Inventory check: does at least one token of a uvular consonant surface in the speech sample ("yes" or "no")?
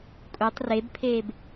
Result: no